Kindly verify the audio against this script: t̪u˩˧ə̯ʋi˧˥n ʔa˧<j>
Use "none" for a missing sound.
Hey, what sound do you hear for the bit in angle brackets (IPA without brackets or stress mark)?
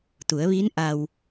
w